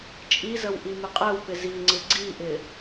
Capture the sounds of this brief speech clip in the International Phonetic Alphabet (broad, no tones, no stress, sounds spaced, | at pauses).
t͡ʃʼ i z ə w ʔ i m ɪ qʼ ɛ w p ɪ z i ŋ͡ǀ ɪ ɡ͡ǀ i ʔ ɪ